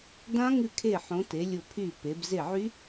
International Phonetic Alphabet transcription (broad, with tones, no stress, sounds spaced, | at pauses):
d ã˦˥ ŋ ʉ˦˨ kʰ e˦˨ ħ õ˨˦ t e˨˦ lʲ ʊ˦˨ pʰ y˦˨ p e˨˦ b z e˦˨ ʕ y˦˥